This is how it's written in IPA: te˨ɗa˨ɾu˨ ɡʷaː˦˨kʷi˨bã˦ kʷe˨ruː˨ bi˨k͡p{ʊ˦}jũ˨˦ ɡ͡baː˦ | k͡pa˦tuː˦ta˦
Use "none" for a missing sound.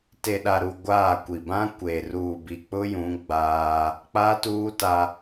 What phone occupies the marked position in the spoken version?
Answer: ʊ˦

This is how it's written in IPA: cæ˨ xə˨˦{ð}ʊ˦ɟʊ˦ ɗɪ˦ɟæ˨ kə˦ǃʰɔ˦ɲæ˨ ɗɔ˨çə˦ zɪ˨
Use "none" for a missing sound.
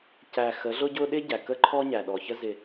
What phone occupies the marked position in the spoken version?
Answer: ɮ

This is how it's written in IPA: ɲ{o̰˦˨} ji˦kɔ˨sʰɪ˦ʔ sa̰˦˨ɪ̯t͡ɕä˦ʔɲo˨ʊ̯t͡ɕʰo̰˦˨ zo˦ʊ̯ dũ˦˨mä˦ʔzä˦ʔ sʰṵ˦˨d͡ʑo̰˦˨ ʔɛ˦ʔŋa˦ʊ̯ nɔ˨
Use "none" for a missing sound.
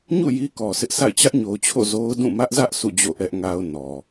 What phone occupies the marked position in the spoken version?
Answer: ṵ˦˨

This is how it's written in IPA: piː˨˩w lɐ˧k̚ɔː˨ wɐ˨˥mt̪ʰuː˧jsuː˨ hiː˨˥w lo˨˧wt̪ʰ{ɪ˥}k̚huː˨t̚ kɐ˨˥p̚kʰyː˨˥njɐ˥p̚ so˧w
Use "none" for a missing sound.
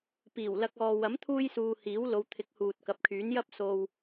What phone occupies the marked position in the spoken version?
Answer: ɪ˨˥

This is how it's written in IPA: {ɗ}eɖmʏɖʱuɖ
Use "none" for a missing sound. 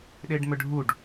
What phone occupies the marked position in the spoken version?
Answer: ɗ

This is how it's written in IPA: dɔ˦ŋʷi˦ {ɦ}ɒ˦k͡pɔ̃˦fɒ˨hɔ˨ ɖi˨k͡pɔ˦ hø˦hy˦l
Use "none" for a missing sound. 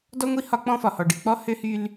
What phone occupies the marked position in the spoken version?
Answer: h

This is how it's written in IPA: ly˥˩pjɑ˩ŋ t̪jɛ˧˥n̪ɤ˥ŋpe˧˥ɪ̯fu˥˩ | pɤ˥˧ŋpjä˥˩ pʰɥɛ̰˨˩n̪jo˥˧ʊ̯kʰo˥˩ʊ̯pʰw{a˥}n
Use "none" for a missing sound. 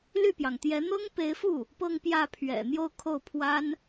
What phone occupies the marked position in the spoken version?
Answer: a˥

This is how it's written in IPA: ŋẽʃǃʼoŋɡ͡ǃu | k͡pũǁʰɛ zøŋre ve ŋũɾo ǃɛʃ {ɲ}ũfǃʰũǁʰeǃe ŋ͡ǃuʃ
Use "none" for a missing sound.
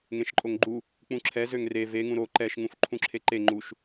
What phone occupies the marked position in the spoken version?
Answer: ŋ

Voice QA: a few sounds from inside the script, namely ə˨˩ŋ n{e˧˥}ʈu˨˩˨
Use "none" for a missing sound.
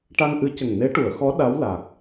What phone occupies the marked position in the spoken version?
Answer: e˧˥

